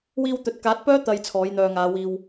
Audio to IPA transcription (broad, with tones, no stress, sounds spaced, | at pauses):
w iː˧ w t̪ ɵ˨ t̚ k aː˨˥ t̚ p œː˥ t̪ ɐ˨ j t͡sʰ ɔː˨˥ j n̪ œː˨ ŋ aː˨˧ w iː˧ w